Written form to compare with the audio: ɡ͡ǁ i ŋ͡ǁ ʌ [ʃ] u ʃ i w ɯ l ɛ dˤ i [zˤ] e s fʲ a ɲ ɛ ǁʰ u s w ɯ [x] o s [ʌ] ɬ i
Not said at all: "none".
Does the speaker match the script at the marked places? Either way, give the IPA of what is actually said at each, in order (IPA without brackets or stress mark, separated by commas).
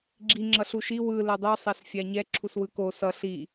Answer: ɬ, sˤ, k, ʌ